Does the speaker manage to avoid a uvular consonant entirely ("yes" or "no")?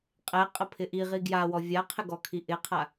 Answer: no